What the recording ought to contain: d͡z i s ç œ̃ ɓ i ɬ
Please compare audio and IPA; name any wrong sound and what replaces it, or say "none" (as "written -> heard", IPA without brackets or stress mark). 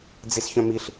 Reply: ɓ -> m